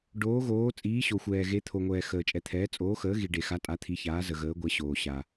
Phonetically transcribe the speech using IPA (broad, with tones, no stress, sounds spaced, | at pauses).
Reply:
ɖ oː˨˦ ɣ oː˨˦ t͡sʼ iː˨˦ ɕ o˨ xʷ ɛː˨ ɣ e˨˦ t̪ʰ o˨ ŋʷ ɛː˨ x əː˨ t͡ʃʼ ɛ˨ t̪ʰ ɛː˨˦ t͡sʼ oː˨˦ x əː˨˦ ɣ i˨ ɖ e˨ x a˨˦ tʼ a˨˦ t̪ʰ i˨˦ ç aː˨˦ z ə˨ ɣ əː˨˦ ɡʷ ɛ˨˦ ɕ oː˨ ɕ a˨